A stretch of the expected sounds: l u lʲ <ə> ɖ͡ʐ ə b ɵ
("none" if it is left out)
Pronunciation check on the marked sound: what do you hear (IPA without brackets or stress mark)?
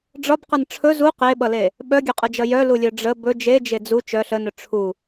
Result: œ